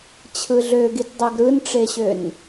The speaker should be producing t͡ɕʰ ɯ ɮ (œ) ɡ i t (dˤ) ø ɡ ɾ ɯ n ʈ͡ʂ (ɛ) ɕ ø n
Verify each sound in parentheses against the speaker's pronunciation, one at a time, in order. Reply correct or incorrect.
incorrect, correct, incorrect

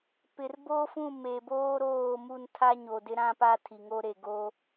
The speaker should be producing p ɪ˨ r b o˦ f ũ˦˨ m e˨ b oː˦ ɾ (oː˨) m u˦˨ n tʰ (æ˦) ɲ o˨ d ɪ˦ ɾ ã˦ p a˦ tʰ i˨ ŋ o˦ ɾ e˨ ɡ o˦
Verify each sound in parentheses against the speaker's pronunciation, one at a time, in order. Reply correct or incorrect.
incorrect, incorrect

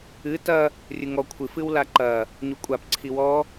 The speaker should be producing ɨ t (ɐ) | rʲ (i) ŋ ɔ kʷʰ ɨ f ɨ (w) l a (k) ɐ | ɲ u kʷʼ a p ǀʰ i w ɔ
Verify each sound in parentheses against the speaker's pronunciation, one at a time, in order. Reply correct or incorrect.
correct, incorrect, correct, incorrect

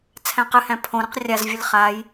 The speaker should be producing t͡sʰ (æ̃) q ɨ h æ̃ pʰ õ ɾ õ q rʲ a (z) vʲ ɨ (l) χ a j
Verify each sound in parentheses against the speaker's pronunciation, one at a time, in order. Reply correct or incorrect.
correct, correct, correct

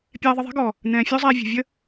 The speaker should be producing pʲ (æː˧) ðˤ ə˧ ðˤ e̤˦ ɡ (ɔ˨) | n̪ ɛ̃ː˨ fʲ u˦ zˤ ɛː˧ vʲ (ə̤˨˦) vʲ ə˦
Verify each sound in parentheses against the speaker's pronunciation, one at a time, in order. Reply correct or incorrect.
incorrect, correct, incorrect

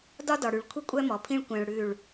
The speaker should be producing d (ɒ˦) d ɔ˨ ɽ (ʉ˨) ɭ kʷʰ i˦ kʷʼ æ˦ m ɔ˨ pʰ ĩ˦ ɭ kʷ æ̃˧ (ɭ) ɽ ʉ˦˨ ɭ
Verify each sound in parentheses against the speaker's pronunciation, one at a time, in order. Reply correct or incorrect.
correct, correct, correct

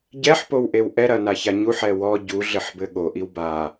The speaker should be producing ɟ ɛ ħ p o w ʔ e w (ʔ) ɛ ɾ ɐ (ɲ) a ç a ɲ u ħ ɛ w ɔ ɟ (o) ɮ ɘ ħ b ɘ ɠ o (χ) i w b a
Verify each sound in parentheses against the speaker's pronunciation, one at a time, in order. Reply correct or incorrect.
correct, incorrect, incorrect, incorrect

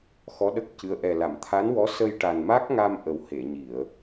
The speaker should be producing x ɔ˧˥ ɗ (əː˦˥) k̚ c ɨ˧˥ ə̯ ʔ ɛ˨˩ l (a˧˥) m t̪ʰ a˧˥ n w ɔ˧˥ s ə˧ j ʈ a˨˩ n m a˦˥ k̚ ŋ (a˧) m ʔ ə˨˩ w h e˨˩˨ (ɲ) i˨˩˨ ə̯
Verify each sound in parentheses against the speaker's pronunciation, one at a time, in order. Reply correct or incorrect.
incorrect, incorrect, correct, correct

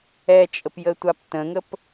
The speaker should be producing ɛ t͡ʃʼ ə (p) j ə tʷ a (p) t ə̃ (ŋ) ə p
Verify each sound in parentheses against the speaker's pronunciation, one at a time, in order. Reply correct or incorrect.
correct, correct, correct

